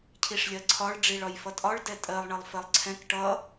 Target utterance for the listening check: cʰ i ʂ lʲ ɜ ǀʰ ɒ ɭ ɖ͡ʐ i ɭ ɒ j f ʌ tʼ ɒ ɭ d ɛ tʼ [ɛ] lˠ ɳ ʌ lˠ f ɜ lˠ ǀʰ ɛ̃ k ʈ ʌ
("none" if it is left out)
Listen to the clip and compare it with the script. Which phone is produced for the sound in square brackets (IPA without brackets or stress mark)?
ɜ